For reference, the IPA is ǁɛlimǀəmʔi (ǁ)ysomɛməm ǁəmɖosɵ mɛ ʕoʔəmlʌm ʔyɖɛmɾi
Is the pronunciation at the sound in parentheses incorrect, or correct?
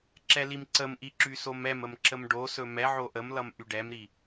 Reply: correct